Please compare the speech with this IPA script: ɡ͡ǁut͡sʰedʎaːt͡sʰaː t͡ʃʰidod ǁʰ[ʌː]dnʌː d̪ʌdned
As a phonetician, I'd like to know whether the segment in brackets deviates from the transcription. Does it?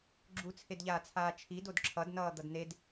yes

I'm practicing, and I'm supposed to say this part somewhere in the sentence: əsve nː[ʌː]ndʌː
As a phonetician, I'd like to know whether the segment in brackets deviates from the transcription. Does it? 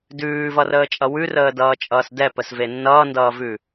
no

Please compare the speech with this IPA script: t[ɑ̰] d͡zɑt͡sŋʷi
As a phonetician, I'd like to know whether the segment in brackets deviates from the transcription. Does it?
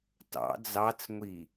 no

